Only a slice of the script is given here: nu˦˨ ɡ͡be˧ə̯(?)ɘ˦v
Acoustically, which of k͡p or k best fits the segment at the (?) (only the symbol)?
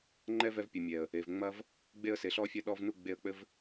k͡p